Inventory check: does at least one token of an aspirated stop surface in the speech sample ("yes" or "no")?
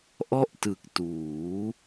no